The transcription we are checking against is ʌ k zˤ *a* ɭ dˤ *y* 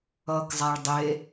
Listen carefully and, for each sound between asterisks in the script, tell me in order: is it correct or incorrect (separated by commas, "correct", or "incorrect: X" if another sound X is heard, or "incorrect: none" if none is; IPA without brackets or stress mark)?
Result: correct, incorrect: e